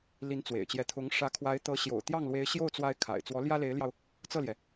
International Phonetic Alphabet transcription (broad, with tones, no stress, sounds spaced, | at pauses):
l i˧˥ n t͡s w ḛ˨˩ ɪ̯ t͡ɕ j ɛ˧˥ t̪ʰ ʊ˧˥ ŋ ʂ ä˧˥ kʰ w a˧˥ ɪ̯ t̪ ɤ˧˥ ɕ j o̰˨˩ ʊ̯ t̪ j ɑ˥˩ ŋ l w e˧˥ ɪ̯ ɕ j o˥˩ ʊ̯ t͡s w a˥ ɪ̯ kʰ a̰˨˩ ɪ̯ t͡s w ɔ˧˥ l j ä˥ l e˧˥ ɪ̯ l j ɑ˧ ʊ̯ | t͡s ɤ˥˩ l j ɛ˩